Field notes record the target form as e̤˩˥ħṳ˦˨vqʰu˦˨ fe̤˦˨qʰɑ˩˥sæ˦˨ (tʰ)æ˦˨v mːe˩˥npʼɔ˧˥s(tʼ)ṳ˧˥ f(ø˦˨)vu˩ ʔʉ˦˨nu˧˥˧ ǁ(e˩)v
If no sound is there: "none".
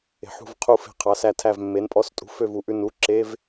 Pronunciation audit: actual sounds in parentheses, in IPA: tʰ, tʼ, ø˦˨, e˧˥˧

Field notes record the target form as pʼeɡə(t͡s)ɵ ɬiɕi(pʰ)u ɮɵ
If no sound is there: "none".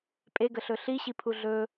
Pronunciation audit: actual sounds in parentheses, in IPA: ɬ, pʰ

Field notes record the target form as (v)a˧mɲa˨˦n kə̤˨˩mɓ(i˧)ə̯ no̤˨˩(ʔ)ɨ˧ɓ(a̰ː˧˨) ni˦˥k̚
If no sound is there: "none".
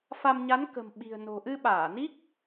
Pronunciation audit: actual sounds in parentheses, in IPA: f, i̤˨˩, ʔ, aː˧˩

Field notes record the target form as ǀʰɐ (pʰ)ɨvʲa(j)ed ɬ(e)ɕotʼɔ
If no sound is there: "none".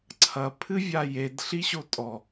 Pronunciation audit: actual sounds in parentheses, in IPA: pʰ, j, i

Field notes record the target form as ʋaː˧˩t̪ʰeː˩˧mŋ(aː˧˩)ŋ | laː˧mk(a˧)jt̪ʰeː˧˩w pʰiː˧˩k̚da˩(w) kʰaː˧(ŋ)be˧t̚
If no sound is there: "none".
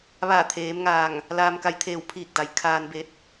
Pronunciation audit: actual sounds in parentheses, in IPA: aː˧˩, a˧, j, n

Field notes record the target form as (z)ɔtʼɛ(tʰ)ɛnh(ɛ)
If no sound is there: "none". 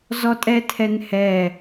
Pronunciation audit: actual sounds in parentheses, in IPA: z, tʰ, ɛ

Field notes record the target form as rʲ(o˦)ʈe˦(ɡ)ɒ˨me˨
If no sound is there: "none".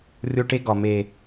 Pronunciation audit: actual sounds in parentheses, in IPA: o˦, ɡ

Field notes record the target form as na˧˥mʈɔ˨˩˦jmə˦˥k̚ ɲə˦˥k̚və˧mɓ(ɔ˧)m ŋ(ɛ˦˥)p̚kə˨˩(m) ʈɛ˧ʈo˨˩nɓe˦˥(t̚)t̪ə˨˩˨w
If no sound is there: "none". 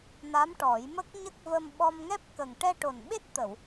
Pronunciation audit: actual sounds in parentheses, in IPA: ɔ˧, ɛ˦˥, ŋ, t̚

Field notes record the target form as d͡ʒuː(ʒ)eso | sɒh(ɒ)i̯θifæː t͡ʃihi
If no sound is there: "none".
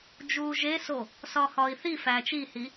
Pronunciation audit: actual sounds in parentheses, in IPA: ʒ, ɒː

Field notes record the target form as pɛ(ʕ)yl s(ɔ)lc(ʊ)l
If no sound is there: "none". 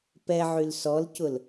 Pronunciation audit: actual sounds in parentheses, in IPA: ʕ, ɔ, ʊ

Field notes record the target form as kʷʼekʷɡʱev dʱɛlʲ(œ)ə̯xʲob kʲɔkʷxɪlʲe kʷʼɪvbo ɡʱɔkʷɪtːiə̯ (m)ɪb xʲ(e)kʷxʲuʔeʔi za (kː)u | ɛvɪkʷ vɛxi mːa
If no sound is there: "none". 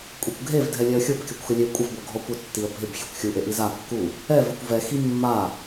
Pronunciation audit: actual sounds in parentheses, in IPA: ɛ, bʱ, e, kː

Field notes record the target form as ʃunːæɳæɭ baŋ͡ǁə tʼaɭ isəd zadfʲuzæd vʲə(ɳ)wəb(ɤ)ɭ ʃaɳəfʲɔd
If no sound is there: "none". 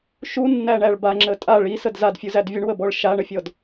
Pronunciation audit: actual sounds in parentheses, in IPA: ɳ, ɔ

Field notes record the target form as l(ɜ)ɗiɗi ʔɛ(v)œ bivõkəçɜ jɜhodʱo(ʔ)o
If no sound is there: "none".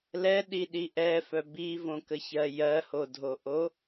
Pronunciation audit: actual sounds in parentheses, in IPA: ɛ, f, ʔ

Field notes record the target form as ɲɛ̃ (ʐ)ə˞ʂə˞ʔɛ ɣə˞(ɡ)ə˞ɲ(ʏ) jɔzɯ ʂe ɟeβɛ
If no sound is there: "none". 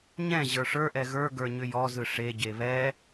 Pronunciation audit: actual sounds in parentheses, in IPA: ʑ, ɡ, ʏ

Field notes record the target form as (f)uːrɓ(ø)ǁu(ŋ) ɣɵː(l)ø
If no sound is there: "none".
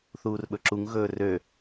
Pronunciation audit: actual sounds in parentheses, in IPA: θ, ɵ, ŋ, r

